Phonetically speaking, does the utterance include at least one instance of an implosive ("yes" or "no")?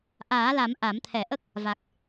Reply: no